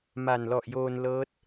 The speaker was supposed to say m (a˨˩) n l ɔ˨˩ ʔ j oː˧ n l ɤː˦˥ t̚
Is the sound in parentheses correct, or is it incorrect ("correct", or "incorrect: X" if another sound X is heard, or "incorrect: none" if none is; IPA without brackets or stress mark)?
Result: correct